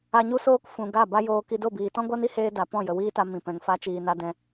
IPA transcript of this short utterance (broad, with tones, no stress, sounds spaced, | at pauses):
a˧ ɲ u˦ s oː˦ k f ũ˨ ɡ a˦˨ b a˦ j oː˧ k i˧ d o˦˨ b iː˨ t ɔ̃˦ ɡʷ a˦ n i˦ h eː˧ d a˨ p ɔ̃˦˨ j ə˨ w iː˦ t a˧ m ĩ˨ p ɛ̃˨ ŋ f a˧ t͡ʃ iː˨ n a˧ d ɛ̃˧